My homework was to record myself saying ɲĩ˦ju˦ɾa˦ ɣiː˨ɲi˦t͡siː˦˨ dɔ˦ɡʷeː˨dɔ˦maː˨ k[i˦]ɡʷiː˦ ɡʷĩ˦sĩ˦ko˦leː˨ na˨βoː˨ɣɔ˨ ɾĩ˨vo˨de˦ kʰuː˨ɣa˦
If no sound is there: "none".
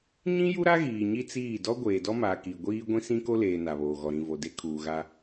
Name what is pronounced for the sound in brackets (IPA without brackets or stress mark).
i˨